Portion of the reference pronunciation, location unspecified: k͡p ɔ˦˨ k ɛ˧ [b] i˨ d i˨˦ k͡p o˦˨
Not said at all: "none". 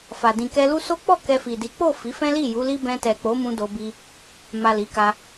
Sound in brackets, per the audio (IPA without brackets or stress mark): f